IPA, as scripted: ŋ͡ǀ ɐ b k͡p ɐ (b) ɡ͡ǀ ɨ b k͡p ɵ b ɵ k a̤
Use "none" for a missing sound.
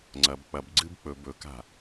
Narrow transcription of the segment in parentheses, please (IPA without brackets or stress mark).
b